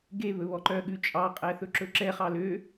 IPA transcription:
ɡ e β ɵ β ɔ ǃ œ ɠ ʉ t͡ʃʼ ɑ qʼ æ θ ɵ ǁ ɵ ǁ ɛ χ ɑ l ø

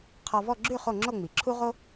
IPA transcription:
qʰ ɔ˧ v ɔ˥˧ ɡ͡ǁ ʉ˥˧ χ o˥˧ ŋ͡ǁ o˥˧ ŋ͡m i˩˧ ǁʰ u˥ ʁ o˥

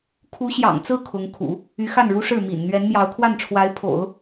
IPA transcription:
kʰ u˧˥ ɕ j ɑ̰˨˩ ŋ t͡s ɹ̩˥˩ kʰ ʊ˧˥ ŋ kʰ ṵ˨˩˦ | y˧˥ x a˥˩ n ɻ u˥ ʂ ɻ̩˥˩ m ḭ˨˩ n n̪ ɥ ɛ˧˥ n m j ɑ˧˥ ʊ̯ kʰ w a˥˩ n ʈ͡ʂʰ w a˧˥ ɪ̯ pʰ o̰˨˩˦ ʊ̯

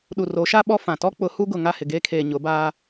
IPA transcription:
ɗ u˨ r o˨˦ ʃ a˦ ɓ ɔ˦ f ã˨ t ɔ˦ k͡p ʊ˨˦ h u˦ ɡ ʊ˨ ŋ a˦˨ h ɪ˨ ɡ eː˦ kʰ eː˨ ɲ ʊ˨˦ b aː˦

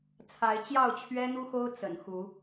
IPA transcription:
t͡sʰ a˨˦ ɪ̯ t͡ɕ j ɑ˥˨ ʊ̯ t͡ɕʰ ɥ ɛ˦ n̪ u˦ x o˦ ʊ̯ t͡s ə̰˨˩ n x u˨˦

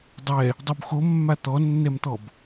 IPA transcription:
dˤ ɛ | dˤ u b x o mː a t̪ ɔ nː ɛ m t̪ ɔ b

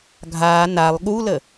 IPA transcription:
ɡʱ aː n a lˠ ɠ u l ə

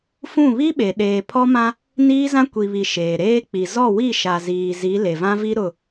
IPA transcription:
f ũ˦˨ β i˦ ɓ e˨ ɗ eː˨ pʰ ɔ˦ m ã˦ | n iː˦ z ã˦ kʷ i˨ β i˨ ʃ eː˨ ɾ eː˦ k͡p i˨ z ɔ˦˨ w i˦˨ ʃ a˨ z iː˨ z i˨˦ l e˨ v ã˦ v i˦ ɾ ʊ˦˨

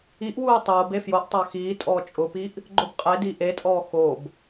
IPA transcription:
i ʔ w uː tˤ oː b e f j o ʔ tˤ a x iː tʼ ɔː t͡ʃʼ ʊ p i ʔ | ɡ͡ǃ ʊ b qʼ e d i ʔ e tʼ ɔː x o b

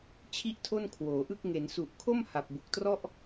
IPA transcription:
t͡ɕʰ i˥˩ ʔ tʰ o˥˩ n kʰ w oː˩˦ ʔ ɯ˥˩ k̚ ŋ e˩˦ n s u˨˩ ʔ kʰ o˥˩ m h a˨˩ p̚ b u˨˩ k̚ t r ɔ˥˩ ʔ

